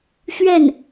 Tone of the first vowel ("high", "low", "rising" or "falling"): falling